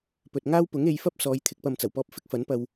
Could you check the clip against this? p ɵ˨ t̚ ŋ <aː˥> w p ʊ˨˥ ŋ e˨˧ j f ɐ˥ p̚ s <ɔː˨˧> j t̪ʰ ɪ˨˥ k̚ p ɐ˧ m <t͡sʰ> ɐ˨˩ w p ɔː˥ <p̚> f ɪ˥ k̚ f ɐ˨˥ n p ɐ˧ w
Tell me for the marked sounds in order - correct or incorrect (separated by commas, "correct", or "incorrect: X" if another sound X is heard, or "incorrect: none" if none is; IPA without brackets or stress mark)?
correct, correct, incorrect: t͡s, correct